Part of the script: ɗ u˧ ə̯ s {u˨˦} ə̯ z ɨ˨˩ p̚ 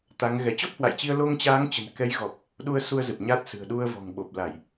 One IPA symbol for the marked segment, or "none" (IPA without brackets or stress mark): u˧